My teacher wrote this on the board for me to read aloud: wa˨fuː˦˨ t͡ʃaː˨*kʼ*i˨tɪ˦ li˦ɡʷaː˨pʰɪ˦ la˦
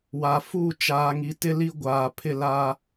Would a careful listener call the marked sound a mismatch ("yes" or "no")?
yes